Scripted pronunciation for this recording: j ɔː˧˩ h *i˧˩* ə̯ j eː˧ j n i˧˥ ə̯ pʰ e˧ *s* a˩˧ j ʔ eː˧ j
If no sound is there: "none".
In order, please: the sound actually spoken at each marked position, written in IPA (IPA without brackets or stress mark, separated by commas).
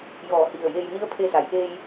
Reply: i˧˩, s